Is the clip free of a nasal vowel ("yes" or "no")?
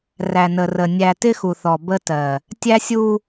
yes